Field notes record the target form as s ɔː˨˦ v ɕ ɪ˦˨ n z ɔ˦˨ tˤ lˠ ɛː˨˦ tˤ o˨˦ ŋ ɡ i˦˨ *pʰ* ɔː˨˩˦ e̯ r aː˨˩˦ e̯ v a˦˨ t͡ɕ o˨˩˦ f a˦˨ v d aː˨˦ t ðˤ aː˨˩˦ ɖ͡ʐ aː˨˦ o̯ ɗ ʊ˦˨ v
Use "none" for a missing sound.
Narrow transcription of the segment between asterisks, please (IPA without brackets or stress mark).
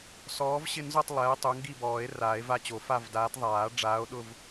b